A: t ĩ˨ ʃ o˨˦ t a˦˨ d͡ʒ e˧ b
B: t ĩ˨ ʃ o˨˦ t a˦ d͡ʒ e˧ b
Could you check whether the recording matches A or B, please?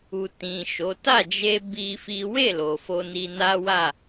A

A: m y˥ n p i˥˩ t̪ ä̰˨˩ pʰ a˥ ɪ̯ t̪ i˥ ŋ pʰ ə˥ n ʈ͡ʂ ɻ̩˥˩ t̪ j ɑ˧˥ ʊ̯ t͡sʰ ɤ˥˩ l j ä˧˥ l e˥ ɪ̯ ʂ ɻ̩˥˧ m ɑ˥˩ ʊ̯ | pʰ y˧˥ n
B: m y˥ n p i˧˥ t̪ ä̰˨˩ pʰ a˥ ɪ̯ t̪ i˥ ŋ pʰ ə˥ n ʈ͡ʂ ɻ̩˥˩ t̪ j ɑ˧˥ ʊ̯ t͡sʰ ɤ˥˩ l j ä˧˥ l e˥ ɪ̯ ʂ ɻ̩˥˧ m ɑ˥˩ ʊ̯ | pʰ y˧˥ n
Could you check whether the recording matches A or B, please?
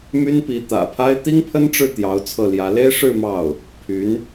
B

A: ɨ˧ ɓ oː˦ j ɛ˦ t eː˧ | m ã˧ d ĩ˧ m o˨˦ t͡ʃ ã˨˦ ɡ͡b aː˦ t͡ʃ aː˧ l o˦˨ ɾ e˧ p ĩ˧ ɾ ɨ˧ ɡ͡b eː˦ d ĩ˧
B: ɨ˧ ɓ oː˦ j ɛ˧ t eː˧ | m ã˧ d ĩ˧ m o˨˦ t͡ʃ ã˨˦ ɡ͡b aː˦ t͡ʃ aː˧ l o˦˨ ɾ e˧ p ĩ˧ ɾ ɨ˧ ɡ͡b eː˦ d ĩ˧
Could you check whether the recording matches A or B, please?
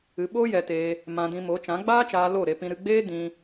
B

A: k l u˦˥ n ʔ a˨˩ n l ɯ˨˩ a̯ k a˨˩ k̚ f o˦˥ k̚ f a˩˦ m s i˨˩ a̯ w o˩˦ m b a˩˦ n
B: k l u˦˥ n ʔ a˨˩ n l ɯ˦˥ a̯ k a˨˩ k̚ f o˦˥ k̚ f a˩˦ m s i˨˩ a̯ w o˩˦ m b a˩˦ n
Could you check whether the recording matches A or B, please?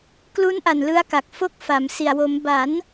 B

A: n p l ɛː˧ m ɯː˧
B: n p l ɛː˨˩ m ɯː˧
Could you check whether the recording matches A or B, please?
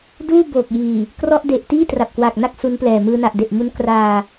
B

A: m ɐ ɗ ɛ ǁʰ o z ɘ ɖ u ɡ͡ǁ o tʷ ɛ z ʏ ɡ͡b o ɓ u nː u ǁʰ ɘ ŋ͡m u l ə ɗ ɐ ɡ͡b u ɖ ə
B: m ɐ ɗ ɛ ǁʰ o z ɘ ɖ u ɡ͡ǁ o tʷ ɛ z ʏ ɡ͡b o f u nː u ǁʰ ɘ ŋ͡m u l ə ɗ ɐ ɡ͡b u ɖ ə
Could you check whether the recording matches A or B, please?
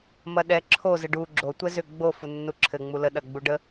B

